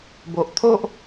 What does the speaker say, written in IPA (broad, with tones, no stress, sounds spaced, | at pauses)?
b o˨ ʔ t̪ʰ o˦ ʔ